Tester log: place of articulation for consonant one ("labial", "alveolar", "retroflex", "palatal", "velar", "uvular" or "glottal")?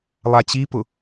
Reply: alveolar